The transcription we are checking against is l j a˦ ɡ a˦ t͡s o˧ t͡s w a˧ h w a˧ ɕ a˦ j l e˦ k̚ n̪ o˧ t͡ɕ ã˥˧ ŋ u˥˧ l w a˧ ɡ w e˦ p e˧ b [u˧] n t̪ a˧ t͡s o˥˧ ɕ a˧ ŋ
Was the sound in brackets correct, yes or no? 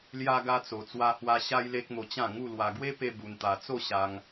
yes